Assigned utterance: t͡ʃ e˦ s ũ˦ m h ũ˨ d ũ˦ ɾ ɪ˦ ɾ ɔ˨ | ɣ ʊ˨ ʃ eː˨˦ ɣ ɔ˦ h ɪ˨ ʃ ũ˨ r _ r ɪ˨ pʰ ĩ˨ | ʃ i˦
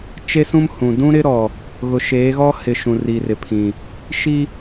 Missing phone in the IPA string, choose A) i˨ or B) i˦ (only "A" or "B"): A